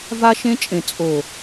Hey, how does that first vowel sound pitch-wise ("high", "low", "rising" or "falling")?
high